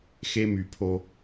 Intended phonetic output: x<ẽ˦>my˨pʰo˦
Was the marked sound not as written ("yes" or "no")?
yes